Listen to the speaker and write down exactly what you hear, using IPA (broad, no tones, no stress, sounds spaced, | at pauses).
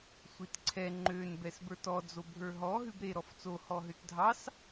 sʷ i t ǀʰ ɛ ŋ͡ǃ ø n b ɛ s b ə˞ t ɔ d͡z o bʱ ə˞ ɦ ɔ ɦ ʉ b ɾ e ɾ ɔ f t͡s o h ɔ ɦ ø t dʱ ɑ s